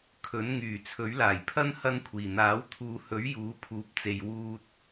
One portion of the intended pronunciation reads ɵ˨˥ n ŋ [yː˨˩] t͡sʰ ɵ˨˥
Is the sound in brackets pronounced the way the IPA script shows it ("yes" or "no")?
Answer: yes